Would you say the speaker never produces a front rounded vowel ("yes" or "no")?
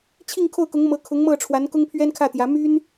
no